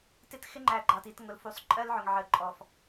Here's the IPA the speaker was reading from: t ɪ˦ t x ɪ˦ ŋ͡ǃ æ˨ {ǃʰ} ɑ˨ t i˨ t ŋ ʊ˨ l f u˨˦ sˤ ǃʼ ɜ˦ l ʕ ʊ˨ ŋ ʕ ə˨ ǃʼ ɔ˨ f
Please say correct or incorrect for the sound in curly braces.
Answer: incorrect